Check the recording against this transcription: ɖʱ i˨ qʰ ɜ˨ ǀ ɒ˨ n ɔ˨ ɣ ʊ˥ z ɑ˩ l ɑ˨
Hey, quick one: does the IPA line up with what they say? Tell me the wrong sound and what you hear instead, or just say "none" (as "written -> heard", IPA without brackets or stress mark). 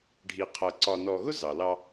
none